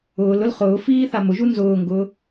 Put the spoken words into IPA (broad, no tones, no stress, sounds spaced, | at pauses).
ʊː l ʊ l χ ʊː f iː θ a m ʊ ʒ u n z ʊː ŋ ɡ ʊː